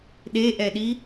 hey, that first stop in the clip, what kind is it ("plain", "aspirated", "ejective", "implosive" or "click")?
implosive